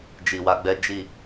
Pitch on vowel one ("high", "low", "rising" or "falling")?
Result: low